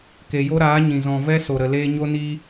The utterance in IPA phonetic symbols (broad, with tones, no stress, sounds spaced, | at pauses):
k e˨ j o˦ ɾ aː˨˦ ɲ ĩ˨ z ɔ̃˨ v ɛ˧ s o˨ ɾ ə˨ l eː˧ ɲ o˦ n i˦